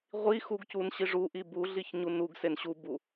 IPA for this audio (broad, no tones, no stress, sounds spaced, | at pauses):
ʁʷ i x u ɡ c u n ɕ i ʐ u ʔ i b u ɮ i ç ɲ u n u ɡ s e n ɕ u b u